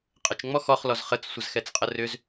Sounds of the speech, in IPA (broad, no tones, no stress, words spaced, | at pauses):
qʼət͡ʃŋ͡mɔ xɔχlɔz χət͡ssʷəzxɛt͡sqʼə rʏz